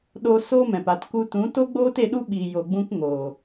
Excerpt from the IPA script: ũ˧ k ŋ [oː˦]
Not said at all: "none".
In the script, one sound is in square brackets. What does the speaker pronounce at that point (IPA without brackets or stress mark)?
oː˨